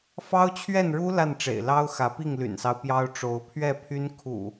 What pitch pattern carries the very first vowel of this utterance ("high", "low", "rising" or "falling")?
high